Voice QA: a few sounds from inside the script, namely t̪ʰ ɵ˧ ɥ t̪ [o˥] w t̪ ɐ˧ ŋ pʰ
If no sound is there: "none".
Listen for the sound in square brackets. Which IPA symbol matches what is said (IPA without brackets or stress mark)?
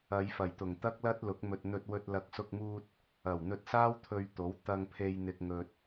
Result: o˨˥